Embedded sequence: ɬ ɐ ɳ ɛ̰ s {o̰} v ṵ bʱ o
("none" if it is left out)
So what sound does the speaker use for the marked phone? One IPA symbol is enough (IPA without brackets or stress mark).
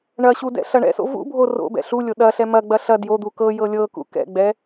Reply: o̰